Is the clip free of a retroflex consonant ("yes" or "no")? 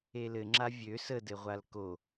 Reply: yes